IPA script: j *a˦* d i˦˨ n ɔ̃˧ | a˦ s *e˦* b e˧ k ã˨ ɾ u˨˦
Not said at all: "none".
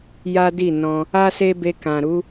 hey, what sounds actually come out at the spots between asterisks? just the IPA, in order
a˦, e˦

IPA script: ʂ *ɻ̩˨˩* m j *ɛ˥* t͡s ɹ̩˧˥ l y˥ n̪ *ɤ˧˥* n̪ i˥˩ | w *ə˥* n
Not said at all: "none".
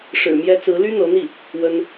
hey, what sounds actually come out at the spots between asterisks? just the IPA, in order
ɻ̩˨˩, ɛ˧˥, ɤ˧˥, ə˥

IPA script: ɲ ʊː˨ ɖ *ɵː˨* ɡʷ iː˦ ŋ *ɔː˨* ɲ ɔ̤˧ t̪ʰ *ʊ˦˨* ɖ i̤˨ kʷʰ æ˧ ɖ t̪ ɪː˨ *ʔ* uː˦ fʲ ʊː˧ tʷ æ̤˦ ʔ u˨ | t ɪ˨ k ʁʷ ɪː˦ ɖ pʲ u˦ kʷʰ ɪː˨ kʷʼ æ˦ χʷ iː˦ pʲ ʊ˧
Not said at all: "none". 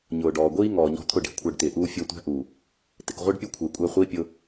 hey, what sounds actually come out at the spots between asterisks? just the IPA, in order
ɔː˨, ɔː˨, ʊ˦˨, ʔ

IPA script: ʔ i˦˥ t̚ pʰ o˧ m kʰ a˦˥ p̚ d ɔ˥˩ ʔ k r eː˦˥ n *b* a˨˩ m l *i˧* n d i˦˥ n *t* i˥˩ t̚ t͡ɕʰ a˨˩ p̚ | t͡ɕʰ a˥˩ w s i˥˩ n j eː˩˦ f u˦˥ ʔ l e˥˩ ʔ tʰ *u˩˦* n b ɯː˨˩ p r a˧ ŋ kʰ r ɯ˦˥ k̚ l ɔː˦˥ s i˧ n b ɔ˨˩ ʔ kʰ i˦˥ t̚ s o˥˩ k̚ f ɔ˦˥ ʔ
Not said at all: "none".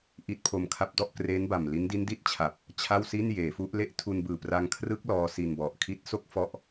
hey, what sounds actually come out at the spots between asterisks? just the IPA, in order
b, i˦˥, d, u˧

